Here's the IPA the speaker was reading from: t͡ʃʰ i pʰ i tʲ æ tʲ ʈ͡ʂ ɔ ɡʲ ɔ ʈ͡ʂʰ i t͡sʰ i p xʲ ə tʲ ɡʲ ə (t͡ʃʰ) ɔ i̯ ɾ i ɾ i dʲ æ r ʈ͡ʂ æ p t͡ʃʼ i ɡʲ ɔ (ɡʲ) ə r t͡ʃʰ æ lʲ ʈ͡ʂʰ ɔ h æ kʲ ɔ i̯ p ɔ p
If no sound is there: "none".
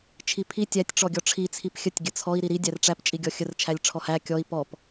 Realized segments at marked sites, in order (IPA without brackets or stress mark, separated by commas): t͡sʰ, xʲ